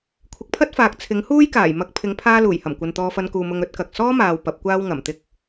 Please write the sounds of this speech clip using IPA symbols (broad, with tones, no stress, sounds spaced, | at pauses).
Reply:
kʷʰ ɪ˨˥ k̚ pʰ ɐ˥ t̚ f aː˨ k̚ t͡sʰ ɪ˨˥ ŋ h uː˥ j k aː˨˩ j m ɐ˧ k̚ pʰ ɪ˨˥ ŋ pʰ aː˧ l uː˨˩ j h ɐ˨˩ m kʷ ɐ˨ n t̪ ɔː˧ f ɐ˧ n k uː˨ m ʊ˧ ŋ ɵ˨˥ t̚ k ɐ˨ k̚ s ɔː˥ m aː˨ w p ɐ˨˥ p̚ kʷ aː˥ w ŋ ɐ˨˩ m t̪ ɪ˧ k̚